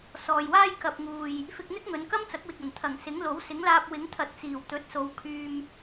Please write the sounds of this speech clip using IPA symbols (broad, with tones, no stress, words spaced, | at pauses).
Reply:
sɔː˨jwaː˥j kɐ˨p̚ŋuː˨j | fɪ˧k̚n̪ɪ˥k̚ŋɵ˨˧n kɐ˥mt͡sɐ˨˥k̚wɪ˨k̚ ɐ˨˩nt̪ʰɐ˨˩ŋsɪ˨˥ŋlo˨˥w sɪ˨˥ŋlaː˧p̚ wɪ˨˥ŋt̪ʰɐ˨˥t̚t͡siː˨˩w t̪ɵ˨˥t̚so˨˧w kʰyː˧m